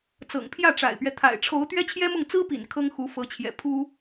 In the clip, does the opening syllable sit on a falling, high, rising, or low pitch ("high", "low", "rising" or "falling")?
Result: low